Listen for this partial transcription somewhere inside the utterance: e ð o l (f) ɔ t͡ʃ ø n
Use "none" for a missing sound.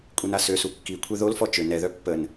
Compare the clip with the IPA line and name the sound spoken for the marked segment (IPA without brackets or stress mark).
f